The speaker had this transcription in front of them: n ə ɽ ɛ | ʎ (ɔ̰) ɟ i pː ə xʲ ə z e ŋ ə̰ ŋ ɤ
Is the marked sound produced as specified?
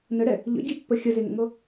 no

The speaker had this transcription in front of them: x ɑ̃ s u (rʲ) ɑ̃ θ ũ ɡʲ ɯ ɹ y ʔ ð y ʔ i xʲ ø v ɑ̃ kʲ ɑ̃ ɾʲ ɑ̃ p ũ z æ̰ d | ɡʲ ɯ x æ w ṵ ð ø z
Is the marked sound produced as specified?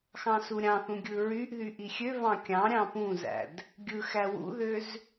no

